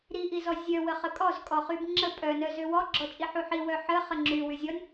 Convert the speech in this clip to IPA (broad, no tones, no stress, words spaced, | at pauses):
ɾiʔizɔ zʲœwəχə kʼɔzkʼɔχyb ŋ͡ǁə pʼœnœ zøwɔɡ͡ǁɔ t͡ʃʼiħuħi wœħə χəŋ͡ǁy wyzʲɔnʲ